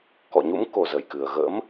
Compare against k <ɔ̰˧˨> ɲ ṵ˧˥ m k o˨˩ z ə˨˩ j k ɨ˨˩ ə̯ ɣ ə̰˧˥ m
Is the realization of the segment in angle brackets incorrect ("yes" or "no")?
no